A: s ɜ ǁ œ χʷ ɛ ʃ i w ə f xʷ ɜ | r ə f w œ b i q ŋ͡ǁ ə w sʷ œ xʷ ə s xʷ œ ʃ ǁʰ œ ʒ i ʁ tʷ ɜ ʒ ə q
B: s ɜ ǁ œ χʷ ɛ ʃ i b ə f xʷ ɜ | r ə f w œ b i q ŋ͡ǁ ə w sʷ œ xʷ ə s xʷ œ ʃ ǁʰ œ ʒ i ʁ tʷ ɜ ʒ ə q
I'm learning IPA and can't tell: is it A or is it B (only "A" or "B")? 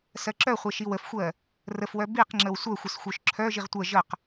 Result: A